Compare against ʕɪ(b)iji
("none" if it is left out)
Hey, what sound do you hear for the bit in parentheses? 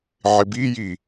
b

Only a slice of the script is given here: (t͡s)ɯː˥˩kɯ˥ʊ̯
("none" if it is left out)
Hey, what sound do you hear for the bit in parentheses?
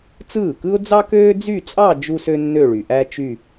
t͡s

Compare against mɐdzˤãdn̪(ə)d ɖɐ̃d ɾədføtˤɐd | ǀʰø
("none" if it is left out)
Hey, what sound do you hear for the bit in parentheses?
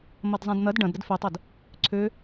ɐ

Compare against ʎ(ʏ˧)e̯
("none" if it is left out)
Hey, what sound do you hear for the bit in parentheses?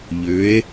ʏ˨˥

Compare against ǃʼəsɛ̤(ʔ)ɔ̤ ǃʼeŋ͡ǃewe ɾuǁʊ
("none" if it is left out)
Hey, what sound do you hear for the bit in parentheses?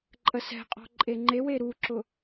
qʼ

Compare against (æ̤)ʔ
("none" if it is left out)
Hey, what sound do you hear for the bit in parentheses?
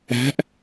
æ̤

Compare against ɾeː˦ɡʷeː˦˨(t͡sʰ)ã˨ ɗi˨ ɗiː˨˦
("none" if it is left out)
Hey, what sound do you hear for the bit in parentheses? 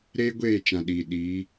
t͡ʃ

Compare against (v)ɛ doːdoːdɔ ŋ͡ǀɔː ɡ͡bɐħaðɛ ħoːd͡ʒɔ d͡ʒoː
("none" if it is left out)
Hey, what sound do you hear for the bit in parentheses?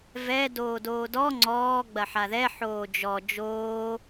v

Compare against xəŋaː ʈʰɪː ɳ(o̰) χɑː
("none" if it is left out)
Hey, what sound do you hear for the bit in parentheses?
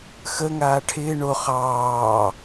o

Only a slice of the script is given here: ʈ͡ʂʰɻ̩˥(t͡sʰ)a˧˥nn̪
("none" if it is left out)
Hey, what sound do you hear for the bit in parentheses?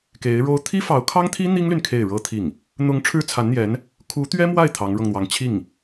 t͡sʰ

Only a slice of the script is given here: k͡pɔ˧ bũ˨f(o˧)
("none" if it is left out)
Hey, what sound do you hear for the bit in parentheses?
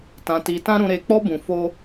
o˧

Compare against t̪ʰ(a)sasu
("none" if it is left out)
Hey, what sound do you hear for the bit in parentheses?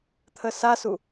ə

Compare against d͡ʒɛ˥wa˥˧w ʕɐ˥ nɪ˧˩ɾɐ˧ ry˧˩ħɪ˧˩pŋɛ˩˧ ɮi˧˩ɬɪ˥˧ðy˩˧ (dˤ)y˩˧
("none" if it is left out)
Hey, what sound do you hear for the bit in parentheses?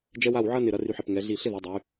dˤ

